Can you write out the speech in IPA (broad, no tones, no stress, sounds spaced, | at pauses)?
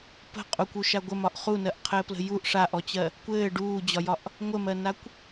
p ə̤ qʼ u kʷ u ʃ a ɡʷ ə m ɒ ʔ χ u n ɜ ʔ qʰ ɘː p l ə̤ j u ʔ ʂ a ʔ ɔ t͡ɕ ɜ | kʷ ɘː ɖ uː d͡ʑ ɒ j ɒ ʔ | ŋʷ ə m ɜ n a kʷ